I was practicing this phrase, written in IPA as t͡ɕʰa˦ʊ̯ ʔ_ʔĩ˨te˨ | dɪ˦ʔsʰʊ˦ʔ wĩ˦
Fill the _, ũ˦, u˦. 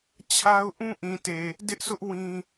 ũ˦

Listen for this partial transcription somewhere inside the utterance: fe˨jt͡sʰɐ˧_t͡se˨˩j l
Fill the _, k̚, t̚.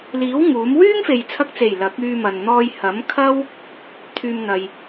k̚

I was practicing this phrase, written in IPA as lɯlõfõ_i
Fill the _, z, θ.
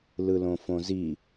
z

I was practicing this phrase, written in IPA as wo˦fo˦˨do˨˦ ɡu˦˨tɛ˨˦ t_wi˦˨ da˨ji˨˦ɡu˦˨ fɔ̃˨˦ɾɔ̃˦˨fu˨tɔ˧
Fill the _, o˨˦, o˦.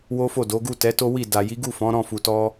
o˦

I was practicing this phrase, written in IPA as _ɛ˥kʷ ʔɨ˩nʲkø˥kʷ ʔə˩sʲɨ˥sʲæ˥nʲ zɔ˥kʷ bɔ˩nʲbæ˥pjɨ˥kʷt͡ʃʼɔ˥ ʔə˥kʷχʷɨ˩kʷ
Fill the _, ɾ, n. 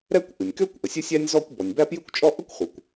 ɾ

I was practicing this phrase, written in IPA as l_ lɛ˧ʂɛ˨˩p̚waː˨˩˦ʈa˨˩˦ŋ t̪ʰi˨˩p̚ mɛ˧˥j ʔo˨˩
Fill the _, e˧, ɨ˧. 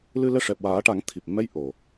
ɨ˧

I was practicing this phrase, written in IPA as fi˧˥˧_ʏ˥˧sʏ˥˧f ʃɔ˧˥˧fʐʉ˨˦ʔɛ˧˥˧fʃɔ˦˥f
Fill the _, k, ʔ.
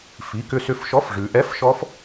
k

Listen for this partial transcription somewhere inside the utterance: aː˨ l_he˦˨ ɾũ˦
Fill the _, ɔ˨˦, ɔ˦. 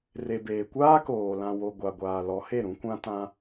ɔ˨˦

